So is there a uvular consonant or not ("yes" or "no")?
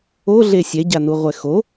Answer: yes